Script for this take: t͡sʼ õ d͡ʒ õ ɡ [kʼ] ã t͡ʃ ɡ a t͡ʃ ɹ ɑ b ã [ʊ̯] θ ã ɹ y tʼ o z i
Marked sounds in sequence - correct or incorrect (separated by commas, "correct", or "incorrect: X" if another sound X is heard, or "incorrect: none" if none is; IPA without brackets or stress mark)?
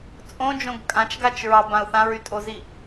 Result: correct, correct